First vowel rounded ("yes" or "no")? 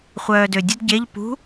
yes